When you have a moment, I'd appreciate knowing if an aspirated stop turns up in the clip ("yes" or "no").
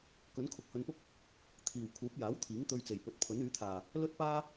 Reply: yes